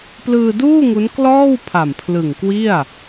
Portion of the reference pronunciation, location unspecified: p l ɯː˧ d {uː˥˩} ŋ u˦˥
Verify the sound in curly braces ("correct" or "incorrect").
correct